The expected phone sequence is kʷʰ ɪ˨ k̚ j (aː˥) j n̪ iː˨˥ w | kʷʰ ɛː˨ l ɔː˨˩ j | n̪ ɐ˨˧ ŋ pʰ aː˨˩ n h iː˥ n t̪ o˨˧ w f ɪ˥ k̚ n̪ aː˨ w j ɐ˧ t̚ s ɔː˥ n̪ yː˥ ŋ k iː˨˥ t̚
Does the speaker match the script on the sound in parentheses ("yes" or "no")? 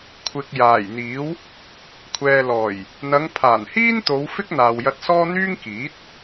no